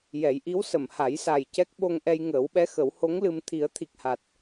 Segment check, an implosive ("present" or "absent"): present